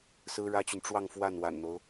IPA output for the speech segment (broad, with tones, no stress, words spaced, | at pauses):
sɹ̩˥ɻä˥t͡ɕy˨n ʈ͡ʂwɑ˥˧ŋ fwa˥˩nwa̰˨˩nn̪o˦ʊ̯